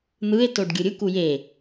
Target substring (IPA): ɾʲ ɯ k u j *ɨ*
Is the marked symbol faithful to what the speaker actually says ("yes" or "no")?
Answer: no